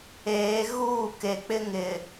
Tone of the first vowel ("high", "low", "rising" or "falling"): rising